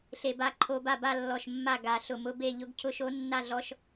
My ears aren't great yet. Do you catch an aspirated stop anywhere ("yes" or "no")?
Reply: yes